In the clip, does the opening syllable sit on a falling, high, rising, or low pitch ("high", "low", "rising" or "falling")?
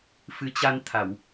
rising